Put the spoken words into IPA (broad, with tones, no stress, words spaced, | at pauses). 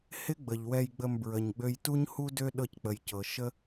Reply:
hɪ˥ɡ͡bə˩ʎwɛ˧jɡ͡bə˧m bɹə˩ɲɡ͡bø˧jtu˥ɲhu˥ dø˥ ɗɤ˧ck͡pə˩jcɤ˩ ʃə˥